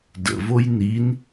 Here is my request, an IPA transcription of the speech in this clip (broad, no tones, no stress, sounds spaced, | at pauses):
d ə̰ v o j n i n